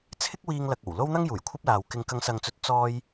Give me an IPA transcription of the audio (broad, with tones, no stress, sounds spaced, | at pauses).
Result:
t͡sʰ ɪ˥ k̚ w iː˧ ŋ l ɐ˨ k̚ o˨˩ w l o˥ w n̪ ɐ˥ ŋ j uː˨˩ j kʷʰ ɐ˥ p̚ l aː˨ w k ɪ˨ ŋ k ɐ˨˧ ŋ s ɐ˨ ŋ t͡s ɵ˨˥ t̚ t͡s ɔː˧ j